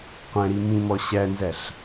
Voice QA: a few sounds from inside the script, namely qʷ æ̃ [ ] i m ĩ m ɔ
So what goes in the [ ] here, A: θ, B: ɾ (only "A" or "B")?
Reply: B